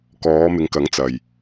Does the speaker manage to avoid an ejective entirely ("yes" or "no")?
yes